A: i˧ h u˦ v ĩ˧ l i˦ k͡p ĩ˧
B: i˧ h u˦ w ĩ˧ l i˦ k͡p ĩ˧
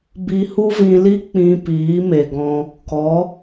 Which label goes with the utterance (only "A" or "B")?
A